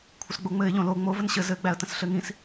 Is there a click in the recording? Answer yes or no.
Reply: no